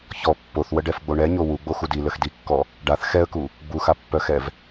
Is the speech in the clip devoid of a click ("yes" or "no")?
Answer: yes